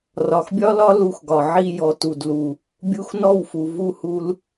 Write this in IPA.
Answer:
rɒ˨xbʲɒ˦lɒ˦ lu˧xɡɒ˨ ʕi˧ jɔ˨tu˨dlu˨ | bʲu˧xnɔ˦˨wfu˨ vu˦˨hu˧l

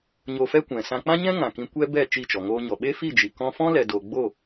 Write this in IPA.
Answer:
ɲo˧fɛ˦kʷɛ̃˨ sã˧k͡pã˦ɲɛ̃˦ ŋã˨kĩ˧kʷɛ˦ bɛ˦˨ t͡ʃi˦˨t͡ʃɔ˨ ŋoː˧ɲɔ˨ ɓe˦ fi˦˨d͡ʒi˨kɔ̃˧ fɔ̃˦lɛ˨do˨ ɡ͡bo˦˨

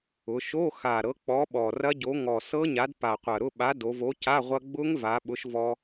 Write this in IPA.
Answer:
ʊ˩˧ʃo˧˥˧ xa˨˩ɾɤ˨˥ k͡pɔ˨˥ ɓɔ˨˩rɐ˦˥ɟo˨˥ ŋɔ˨˩sɤ˦˥ɲa˨˥d pa˨˩qʷɐ˨˩ɾʊ˧˥˧ ɓa˨˥ do˩˧vo˨˥ca˧˥˧ ʁʷɐ˧ ɡ͡bʊ˦˥ŋva˩˧ ɓʊ˨˥ʃvɔ˧

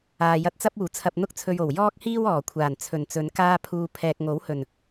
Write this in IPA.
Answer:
aː˨jɐ˧t̚t͡sɐ˥p̚ uː˨˩t͡sʰɐ˨p̚n̪ʊ˧k̚t͡sʰɵ˨ɥ o˨˩wjɔː˥k̚hiː˥w ɔː˨˩kʷʰaː˨˩nt͡sʰɵ˨˩nt͡sɵ˨˧n kaː˧pʰuː˨ pʰɛː˨k̚ ŋo˨˥whɵ˨˩n

